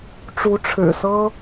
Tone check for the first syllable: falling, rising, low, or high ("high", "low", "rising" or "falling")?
rising